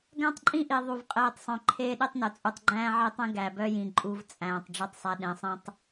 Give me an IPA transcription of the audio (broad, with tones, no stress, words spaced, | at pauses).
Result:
ɡæ̃˦tˤǃʼĩ˦ʔi˨ ðˤu˨v qʼeː˨tˤsˤœ̃˨ ǃʰeː˦ɗi˦tˤnœ˨ t͡sʼu˨tˤɡ͡ǃæ̃ː˦ʕe˦tˤẽ˦ ɡæ˨bœ˦jĩ˨ ǃʼu˦v t͡sʼæ̃ː˨tˤ ɖ͡ʐu˦tˤsˤæ˦ ɗẽ˨˦sˤĩ˦tˤ